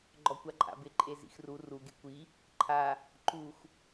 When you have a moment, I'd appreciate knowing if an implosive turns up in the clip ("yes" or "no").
no